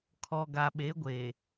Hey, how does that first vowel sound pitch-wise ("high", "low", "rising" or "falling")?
low